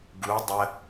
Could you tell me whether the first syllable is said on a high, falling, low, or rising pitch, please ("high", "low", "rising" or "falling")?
rising